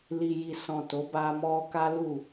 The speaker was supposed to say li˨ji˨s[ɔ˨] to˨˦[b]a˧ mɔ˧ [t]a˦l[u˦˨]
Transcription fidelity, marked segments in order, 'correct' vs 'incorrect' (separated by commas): incorrect, correct, incorrect, correct